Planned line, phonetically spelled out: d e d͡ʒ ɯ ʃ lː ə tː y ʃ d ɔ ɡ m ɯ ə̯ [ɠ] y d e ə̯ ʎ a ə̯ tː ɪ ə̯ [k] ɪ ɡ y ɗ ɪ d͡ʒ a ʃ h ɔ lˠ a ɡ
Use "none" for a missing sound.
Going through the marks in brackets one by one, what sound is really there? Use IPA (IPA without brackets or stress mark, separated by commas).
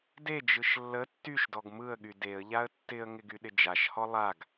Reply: ɠ, ŋ